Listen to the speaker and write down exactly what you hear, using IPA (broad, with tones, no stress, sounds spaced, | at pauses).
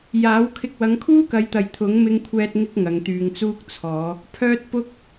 j aː˨˥ w kʰ ɪ˨ k̚ w ɐ˨˧ ŋ kʰ uː˥ k ɐ˨˧ j t̪ ɐ˨ j t̪ʰ ʊ˨˥ ŋ m ɪ˧ ŋ kʷʰ ɛː˧ t̚ ŋ ɪ˧ k̚ ŋ ɐ˨˧ ŋ t̪ yː˨ ŋ t͡s uː˥ k̚ t͡sʰ ɔː˨˧ | pʰ œː˧ t̚ p ʊ˥ k̚